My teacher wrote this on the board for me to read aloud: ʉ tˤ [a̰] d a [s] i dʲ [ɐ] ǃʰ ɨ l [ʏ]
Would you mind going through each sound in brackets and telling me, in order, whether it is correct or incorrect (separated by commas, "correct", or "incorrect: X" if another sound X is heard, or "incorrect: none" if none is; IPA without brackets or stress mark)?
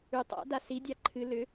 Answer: correct, correct, incorrect: a, correct